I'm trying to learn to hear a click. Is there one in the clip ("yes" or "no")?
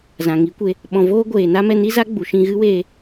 no